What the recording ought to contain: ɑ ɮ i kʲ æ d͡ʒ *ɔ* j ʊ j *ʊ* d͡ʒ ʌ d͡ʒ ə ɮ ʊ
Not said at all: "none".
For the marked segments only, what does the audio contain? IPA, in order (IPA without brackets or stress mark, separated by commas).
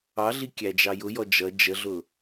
ɑ, ɔ